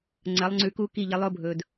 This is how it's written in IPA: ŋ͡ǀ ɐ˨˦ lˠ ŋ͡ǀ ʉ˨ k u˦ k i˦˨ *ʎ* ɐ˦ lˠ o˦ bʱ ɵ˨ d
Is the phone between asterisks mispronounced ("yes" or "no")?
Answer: no